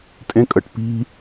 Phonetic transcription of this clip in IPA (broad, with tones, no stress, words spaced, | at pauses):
tʼẽ˥kʼə˧ʈ pi̤˥